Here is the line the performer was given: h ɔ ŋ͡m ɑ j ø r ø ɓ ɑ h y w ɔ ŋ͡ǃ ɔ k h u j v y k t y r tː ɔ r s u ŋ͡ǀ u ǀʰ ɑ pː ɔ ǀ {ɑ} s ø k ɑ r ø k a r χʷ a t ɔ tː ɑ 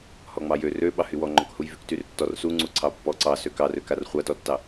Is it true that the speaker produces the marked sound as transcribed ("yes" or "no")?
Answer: yes